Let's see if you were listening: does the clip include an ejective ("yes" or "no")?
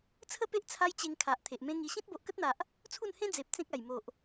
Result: no